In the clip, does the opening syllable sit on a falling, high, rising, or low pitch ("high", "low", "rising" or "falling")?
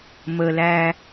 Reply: low